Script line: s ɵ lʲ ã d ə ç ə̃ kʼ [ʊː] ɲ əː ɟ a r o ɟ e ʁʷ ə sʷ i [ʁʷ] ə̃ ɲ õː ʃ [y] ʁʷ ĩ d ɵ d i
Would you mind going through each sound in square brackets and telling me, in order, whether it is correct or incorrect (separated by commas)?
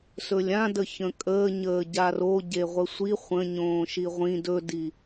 incorrect, incorrect, incorrect